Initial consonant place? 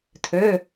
alveolar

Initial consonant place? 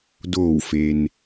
alveolar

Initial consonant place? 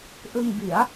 glottal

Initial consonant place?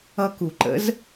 velar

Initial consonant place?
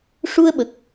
retroflex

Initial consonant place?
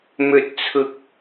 labial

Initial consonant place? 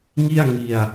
velar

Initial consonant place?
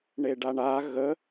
retroflex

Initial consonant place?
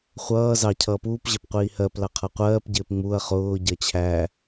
uvular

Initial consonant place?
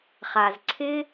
uvular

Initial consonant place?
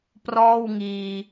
labial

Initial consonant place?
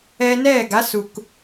alveolar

